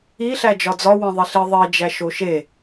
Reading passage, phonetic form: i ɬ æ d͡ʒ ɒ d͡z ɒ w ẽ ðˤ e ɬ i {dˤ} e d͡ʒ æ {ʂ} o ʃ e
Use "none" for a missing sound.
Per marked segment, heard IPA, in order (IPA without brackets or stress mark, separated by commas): ðˤ, ʃ